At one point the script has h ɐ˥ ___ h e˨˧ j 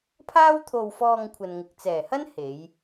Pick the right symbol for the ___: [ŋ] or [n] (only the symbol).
n